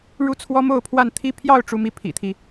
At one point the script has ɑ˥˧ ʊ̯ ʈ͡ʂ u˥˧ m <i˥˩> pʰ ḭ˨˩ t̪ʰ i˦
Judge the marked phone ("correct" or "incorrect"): correct